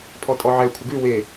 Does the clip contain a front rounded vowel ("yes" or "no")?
no